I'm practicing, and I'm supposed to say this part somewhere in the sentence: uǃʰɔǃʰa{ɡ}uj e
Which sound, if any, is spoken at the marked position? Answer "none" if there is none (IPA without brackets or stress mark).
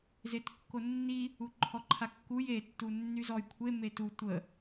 kː